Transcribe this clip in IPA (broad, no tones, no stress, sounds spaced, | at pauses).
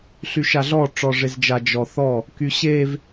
ɬ y ʃ a ɮ ɔ ʈ͡ʂ ɔ ʐ e z d͡ʒ a d͡ʒ ɔ θ ɔ | k y ɕ e v